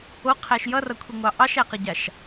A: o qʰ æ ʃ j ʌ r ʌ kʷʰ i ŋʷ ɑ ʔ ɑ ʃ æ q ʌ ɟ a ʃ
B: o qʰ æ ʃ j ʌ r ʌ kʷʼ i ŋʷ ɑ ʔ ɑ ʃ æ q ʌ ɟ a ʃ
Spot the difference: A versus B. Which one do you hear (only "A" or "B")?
A